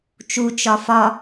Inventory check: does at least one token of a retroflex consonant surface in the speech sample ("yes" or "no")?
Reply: no